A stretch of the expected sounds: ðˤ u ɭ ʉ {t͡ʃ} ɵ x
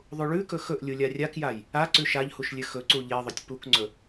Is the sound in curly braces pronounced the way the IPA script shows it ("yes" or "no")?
no